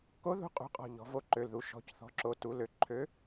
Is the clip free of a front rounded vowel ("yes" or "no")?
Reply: no